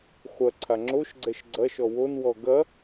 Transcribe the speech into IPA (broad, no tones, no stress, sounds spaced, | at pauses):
χʷ ɐ ǀʰ a ŋ͡ǁ o ʃ ɡ͡ǀ ɛ ʃ ɡ͡ǀ ɐ ʃ ɔ w o n w ɔ ɡ ɐ